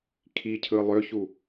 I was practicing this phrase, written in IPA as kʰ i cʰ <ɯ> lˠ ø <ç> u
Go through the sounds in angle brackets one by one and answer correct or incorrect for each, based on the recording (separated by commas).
correct, correct